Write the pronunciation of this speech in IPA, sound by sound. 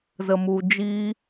z ə˨ m u˨ d͡ʒ i˧

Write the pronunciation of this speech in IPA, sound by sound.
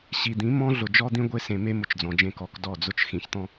ɕ i˨ d̪ ĩ˨˦ m ɔ̃˦ ɮ ʊ˨ d͡ʒ ɔ˦ d̪ ĩ˦ ɡʷ e˦ s ẽ˨ m e˦ m ʊ˨ t͡ʃ d͡z ɔ̃˨ d͡ʒ ẽ˦˨ k ɔ˦˨ k d ɔ˦˨ d͡z ʊ˦ t͡ʃ x ĩ˨ ç t̪ ɔ̃˦

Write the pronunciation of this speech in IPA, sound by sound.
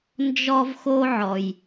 n d͡ʒ ɔ˦ v x o˦ ʕ ɔ˩ j

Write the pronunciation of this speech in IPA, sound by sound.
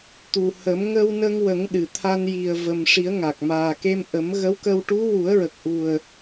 t̪ u˨˩ h ə˨˩˦ m ŋ ə˧ w n ə˧ ŋ w ə˨˩˦ ŋ ɗ ɨ˨˩ t̪ʰ a˧ n j i˨˩ ə̯ v ə˨˩ m ʂ i˨˩˦ ə̯ ŋ a˨˩ k̚ m aː˨˩ k e˧ m ʔ ə˨˩˦ m ɣ ə˧˥ w k ə˧ w ʈ u˧˥ w u˨˩˦ ə̯ ɹ ə˨˩ k̚ ʔ u˨˩ ə̯

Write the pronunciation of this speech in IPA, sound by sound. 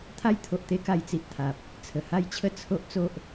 t̪ʰ a˦ j t̪ʰ o˨ ʔ t̪ e˦ k a˧ j t͡s i˨ ʔ t̪ʰ a˨ p̚ | t͡sʰ ə˨˩ h a˥˧ j t͡ɕʰ ə˦ t͡sʰ o˦ ʔ t͡s o˦ ʔ

